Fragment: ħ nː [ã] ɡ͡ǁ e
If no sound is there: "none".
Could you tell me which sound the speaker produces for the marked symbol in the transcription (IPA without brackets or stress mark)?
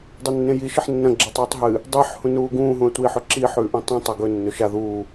ɐ̃